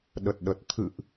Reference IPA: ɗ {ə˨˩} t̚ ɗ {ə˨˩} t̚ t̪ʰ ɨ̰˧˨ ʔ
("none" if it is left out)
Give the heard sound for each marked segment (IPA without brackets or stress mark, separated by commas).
ə˨˩, ə˨˩